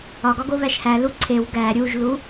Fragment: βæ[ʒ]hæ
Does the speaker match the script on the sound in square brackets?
no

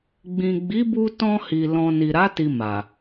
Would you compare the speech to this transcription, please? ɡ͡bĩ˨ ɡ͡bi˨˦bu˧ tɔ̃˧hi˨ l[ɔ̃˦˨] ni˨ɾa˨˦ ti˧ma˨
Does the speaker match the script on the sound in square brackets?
no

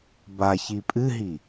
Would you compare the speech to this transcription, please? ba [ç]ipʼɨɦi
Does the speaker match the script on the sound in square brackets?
yes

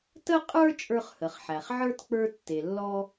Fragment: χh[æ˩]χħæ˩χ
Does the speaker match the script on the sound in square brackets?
no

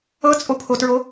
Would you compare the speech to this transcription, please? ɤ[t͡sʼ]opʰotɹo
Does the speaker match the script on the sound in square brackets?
yes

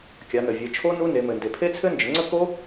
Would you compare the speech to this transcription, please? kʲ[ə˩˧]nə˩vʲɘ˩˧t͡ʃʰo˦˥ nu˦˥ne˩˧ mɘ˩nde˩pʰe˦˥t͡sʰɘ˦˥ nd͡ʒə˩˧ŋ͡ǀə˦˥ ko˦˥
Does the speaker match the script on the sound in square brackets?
no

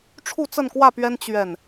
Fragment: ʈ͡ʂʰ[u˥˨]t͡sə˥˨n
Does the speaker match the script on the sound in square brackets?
yes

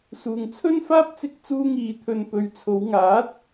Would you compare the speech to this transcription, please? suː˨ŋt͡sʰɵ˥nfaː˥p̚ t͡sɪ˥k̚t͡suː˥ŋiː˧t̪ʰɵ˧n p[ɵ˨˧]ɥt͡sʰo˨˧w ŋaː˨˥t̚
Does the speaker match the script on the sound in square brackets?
no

